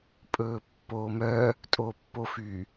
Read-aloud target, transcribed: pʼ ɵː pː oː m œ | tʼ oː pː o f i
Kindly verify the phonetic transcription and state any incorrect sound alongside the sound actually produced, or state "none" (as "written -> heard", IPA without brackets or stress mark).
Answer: i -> y